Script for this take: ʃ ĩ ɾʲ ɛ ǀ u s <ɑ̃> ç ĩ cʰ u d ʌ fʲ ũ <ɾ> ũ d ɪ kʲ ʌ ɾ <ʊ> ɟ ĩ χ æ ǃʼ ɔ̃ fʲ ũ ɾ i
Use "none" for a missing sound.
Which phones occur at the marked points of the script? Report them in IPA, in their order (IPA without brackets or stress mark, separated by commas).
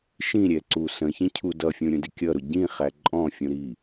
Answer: ə̃, ɾʲ, ʊ